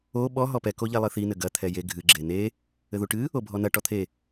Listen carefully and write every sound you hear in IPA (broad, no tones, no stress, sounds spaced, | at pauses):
o ɓ ɔ ɦ ɔ p ɛ k o ʎ ɛ lˠ ɨ θ i n ɘ ɡ ɐ t̪ʰ ɛ j e ɡʱ ɨ ɡ͡ǁ e n e | ɘ ð u ʈ ɨ | o bʱ ɔ n ɐ ʈ ɔ t̪ʰ e